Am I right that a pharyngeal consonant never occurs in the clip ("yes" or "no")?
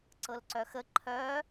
yes